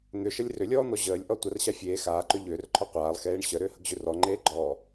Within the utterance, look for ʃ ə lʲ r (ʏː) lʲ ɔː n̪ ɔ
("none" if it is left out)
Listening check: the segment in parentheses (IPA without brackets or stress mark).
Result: ʏ